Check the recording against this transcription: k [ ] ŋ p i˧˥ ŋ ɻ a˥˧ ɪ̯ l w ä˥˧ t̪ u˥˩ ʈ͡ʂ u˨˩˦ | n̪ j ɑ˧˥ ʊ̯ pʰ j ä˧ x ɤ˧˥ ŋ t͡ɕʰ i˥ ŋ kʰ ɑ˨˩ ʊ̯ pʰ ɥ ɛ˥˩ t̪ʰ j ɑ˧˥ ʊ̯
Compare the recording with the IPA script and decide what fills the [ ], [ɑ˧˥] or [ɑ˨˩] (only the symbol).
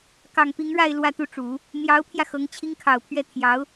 ɑ˨˩